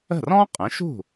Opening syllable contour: falling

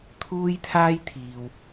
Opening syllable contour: high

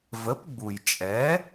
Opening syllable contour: rising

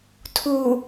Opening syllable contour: low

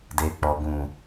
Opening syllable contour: low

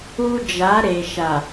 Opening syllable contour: high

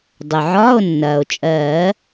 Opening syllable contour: low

